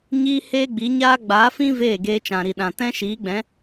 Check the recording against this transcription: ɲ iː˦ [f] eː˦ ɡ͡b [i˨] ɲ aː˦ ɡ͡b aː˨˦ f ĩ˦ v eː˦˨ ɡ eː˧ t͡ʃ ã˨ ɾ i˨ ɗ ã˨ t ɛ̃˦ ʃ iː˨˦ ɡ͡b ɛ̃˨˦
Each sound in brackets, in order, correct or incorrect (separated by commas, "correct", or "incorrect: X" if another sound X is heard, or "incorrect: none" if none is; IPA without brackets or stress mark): incorrect: h, incorrect: i˨˦